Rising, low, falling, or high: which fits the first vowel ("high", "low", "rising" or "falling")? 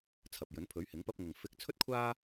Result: low